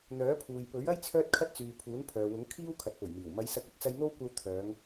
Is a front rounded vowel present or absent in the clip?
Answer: present